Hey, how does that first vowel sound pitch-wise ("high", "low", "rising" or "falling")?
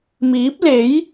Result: rising